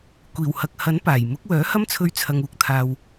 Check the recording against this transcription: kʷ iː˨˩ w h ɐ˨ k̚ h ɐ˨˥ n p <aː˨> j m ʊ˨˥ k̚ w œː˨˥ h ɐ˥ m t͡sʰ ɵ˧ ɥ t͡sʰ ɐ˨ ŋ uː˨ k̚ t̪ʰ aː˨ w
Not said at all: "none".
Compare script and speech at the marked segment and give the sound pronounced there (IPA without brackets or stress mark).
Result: aː˨˩